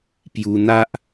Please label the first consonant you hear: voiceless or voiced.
voiceless